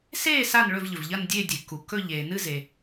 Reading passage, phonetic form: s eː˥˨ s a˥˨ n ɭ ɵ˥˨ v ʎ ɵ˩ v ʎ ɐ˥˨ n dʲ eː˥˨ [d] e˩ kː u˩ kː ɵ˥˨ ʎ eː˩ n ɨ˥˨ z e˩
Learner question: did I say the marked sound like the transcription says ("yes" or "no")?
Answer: no